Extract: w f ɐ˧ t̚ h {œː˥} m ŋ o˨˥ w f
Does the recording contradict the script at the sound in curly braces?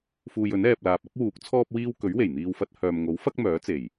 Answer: yes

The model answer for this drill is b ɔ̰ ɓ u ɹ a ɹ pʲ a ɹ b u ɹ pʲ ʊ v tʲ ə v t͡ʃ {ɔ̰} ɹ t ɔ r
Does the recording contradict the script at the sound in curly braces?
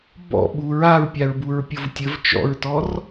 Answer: no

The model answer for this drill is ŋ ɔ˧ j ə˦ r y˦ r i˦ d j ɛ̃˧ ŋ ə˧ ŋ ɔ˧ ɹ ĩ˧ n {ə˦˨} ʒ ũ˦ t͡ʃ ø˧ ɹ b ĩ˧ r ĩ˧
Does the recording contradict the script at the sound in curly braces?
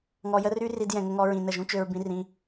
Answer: no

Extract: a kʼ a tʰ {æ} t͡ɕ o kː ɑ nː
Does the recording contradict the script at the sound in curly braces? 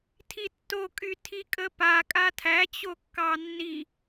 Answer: no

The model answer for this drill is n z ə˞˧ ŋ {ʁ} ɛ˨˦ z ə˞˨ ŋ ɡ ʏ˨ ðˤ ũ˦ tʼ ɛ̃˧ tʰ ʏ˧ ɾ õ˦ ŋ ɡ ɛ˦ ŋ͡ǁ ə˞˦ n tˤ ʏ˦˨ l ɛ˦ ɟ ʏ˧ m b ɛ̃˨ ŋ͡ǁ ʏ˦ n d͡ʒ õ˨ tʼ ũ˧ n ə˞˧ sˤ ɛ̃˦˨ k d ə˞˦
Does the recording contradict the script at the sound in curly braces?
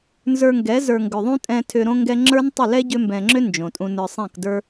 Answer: yes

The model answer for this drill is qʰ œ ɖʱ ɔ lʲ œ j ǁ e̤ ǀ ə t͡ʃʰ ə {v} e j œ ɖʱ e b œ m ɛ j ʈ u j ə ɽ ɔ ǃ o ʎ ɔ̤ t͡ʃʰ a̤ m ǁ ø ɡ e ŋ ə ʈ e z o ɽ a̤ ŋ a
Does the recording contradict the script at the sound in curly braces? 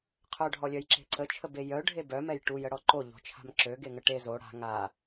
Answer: yes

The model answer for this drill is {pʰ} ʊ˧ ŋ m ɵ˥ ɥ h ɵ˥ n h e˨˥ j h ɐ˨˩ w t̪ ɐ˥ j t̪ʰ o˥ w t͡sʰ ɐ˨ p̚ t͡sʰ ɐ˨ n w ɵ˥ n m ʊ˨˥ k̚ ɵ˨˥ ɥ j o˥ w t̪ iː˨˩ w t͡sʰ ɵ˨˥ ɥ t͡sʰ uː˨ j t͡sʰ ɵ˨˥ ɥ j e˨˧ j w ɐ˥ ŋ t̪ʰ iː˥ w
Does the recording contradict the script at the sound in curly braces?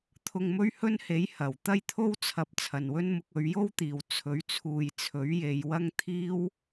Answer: yes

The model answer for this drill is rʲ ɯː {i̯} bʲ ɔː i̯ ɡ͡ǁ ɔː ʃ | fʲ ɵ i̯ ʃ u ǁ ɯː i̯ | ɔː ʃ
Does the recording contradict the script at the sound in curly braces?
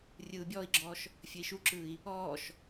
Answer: yes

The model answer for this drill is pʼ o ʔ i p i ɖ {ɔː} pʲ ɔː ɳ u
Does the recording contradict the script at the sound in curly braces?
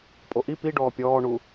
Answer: no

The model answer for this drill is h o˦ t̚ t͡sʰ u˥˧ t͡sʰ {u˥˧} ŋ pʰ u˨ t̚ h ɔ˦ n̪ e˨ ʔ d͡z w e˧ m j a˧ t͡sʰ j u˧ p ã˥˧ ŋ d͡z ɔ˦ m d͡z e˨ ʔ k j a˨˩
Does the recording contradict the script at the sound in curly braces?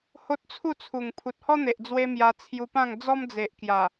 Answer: yes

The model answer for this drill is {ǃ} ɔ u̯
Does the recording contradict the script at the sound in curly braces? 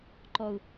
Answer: no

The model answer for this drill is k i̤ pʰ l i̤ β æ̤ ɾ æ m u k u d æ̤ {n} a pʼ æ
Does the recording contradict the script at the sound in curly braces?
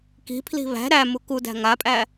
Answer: yes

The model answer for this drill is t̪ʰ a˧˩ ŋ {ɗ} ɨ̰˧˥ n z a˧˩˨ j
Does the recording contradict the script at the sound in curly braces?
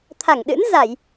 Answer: no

